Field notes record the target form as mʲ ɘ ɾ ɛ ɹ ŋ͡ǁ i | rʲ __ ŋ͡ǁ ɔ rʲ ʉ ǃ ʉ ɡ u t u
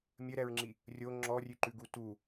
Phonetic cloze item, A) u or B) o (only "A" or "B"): B